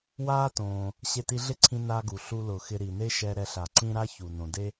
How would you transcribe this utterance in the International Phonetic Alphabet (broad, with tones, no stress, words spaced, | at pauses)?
waː˥tõː˩ | ɕe˧ti˧ ɮɪ˥ǀʰĩ˧ na˧ɡu˩ ɬu˧lʊ˩xɪ˧ ɾi˩ne˥ʃɛ˧ ɾɛ˧ɬa˩ǀĩ˥ ɾa˥çu˩ nõ˩de˥